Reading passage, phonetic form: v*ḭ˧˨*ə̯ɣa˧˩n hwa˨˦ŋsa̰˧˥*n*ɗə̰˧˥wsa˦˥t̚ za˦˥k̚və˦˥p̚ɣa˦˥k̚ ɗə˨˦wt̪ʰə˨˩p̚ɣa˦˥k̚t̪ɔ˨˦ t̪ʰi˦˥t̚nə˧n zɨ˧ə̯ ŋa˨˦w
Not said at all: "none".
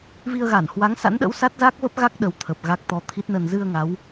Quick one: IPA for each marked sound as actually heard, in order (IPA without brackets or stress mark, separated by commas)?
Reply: i˧, n